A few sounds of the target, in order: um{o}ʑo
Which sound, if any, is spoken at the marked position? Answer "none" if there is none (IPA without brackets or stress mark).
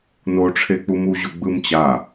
u